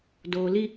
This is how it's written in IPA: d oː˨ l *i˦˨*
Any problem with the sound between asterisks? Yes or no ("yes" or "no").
yes